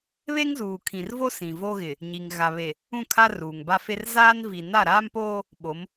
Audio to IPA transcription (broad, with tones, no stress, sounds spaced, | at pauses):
β e˦ ŋ z uː˨ kʰ ĩ˨ r v o˦ s ĩ˨ v o˦ ɣ ɪ˨ | ɲ i˨ ŋ ɣ a˨ β e˨ | ũ˦˨ kʰ a˦ r uː˨ ŋ b a˦ f e˦ r z aː˦ n v i˨ n a˦˨ ɾ aː˦ m p oː˦ | ɓ o˨˦ m